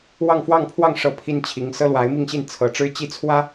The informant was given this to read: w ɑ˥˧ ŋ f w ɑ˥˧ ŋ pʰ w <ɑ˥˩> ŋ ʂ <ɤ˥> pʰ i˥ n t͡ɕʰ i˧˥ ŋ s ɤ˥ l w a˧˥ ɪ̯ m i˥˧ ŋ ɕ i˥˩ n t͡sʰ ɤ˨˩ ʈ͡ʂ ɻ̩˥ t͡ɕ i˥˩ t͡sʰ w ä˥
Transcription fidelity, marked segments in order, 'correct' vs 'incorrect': correct, correct

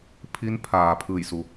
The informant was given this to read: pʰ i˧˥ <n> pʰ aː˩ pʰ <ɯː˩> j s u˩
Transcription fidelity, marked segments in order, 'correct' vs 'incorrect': correct, incorrect: ɯː˧˩

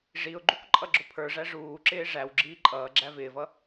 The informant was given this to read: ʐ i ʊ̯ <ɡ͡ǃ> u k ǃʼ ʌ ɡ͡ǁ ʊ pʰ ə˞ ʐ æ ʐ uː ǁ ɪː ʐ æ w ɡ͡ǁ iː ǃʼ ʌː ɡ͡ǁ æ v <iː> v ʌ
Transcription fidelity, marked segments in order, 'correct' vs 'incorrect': correct, incorrect: ɪː

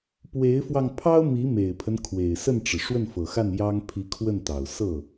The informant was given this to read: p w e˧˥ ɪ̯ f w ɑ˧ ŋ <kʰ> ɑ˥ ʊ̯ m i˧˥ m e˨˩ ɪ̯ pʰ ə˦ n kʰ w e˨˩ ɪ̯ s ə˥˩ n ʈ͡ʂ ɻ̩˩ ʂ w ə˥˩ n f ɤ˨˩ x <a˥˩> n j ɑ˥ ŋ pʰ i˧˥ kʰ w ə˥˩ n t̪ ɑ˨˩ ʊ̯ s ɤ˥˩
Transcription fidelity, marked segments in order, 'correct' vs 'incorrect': incorrect: pʰ, correct

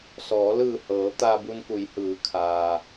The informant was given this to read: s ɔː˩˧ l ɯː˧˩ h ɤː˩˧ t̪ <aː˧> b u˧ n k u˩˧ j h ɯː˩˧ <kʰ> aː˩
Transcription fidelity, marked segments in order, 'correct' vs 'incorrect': correct, correct

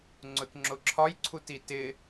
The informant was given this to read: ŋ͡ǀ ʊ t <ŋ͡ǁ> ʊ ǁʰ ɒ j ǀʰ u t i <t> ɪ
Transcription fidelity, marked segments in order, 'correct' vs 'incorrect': correct, correct

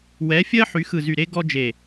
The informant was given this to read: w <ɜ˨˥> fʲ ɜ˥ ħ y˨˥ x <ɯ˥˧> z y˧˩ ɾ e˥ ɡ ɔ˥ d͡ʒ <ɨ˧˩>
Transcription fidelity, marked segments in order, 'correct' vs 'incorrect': incorrect: ɛ˨˥, incorrect: ɯ˧˩, incorrect: e˧˩

